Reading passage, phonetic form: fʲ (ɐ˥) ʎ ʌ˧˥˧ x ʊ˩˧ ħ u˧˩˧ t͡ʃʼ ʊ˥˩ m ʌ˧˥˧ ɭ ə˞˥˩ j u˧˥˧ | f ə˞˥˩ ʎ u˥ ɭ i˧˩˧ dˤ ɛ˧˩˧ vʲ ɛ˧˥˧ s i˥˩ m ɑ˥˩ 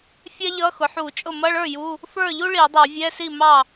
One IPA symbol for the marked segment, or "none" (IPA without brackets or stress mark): æ˥